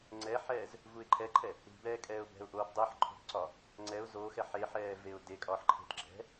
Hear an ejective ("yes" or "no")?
yes